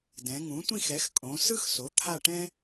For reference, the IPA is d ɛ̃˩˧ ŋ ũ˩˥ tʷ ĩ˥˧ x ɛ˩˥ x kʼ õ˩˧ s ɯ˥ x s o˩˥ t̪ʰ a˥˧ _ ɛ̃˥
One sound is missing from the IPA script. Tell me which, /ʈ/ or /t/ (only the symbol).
ʈ